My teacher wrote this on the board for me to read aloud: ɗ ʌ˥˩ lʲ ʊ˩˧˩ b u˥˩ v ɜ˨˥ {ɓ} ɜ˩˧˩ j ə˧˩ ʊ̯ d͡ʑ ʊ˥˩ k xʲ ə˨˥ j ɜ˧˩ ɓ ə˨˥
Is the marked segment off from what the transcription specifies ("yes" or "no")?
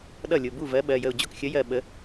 no